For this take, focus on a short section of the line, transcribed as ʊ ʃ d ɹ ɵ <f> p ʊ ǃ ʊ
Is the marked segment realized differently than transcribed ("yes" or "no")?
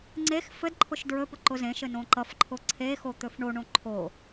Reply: yes